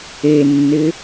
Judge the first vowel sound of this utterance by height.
mid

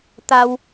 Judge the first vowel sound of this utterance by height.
low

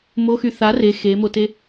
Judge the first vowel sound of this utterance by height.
mid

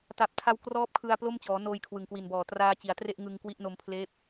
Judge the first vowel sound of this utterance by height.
low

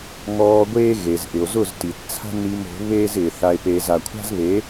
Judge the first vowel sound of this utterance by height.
mid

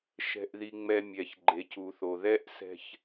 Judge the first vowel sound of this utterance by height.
mid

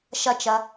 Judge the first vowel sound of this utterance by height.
low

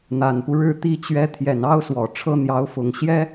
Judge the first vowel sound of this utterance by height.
low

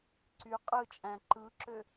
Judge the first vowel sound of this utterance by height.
high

